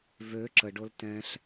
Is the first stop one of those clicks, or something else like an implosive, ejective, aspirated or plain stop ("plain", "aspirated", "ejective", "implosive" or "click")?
click